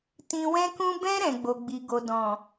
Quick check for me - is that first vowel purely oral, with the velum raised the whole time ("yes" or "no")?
no